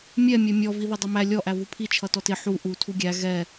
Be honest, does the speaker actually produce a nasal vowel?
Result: no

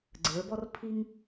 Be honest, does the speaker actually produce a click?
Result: yes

